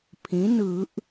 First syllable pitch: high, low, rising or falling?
rising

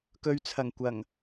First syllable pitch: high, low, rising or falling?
low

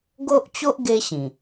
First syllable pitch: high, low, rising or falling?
high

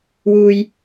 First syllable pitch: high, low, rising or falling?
low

